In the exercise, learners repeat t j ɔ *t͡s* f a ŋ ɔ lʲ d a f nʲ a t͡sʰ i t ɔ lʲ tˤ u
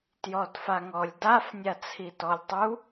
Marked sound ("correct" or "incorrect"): incorrect